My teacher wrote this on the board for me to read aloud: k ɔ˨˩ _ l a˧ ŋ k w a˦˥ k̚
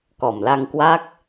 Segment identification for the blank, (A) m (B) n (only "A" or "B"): A